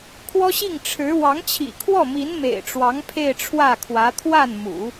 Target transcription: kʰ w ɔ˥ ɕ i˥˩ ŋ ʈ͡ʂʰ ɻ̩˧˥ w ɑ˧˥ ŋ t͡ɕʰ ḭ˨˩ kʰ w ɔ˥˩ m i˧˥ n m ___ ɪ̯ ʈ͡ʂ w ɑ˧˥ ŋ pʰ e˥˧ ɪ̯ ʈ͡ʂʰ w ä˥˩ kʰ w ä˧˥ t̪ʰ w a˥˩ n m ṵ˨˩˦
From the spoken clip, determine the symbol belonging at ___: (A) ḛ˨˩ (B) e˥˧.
A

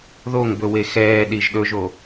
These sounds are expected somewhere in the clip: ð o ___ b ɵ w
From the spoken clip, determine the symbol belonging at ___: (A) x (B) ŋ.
B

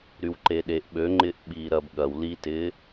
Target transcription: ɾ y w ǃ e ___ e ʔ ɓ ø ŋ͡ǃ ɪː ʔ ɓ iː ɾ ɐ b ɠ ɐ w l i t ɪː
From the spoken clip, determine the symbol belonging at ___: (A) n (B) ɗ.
B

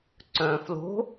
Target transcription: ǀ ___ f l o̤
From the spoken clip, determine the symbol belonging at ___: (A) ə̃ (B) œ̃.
B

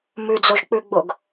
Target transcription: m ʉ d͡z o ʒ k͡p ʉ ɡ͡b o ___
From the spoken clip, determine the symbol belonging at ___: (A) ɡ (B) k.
A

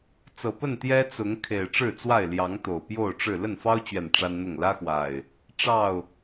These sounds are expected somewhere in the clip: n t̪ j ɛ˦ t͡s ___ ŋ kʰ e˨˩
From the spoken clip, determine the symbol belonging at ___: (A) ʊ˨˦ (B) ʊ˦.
A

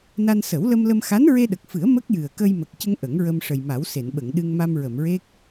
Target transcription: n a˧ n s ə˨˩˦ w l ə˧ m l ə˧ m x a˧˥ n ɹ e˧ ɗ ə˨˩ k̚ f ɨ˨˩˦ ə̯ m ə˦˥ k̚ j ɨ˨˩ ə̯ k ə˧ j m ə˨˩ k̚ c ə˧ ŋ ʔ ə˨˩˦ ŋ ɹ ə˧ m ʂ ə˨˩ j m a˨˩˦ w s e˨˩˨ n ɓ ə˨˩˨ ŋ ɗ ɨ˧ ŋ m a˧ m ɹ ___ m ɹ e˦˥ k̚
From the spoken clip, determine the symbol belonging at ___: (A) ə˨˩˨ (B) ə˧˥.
A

